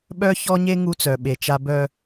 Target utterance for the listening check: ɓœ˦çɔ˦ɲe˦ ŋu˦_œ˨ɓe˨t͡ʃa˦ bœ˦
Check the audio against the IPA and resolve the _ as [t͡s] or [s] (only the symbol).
t͡s